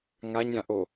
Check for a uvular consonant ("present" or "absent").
absent